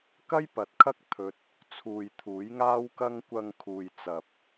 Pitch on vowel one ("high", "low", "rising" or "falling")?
high